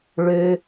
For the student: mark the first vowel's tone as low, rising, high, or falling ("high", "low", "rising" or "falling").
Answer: high